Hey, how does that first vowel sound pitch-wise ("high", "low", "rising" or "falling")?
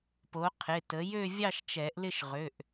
rising